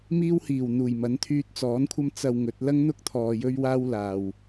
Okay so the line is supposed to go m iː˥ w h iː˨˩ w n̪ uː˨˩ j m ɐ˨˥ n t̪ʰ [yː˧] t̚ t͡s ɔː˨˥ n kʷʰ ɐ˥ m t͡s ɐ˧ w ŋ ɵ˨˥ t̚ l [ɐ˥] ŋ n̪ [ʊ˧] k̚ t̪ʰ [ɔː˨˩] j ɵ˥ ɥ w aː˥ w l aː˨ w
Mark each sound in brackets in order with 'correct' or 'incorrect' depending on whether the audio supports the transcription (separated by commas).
correct, correct, incorrect, incorrect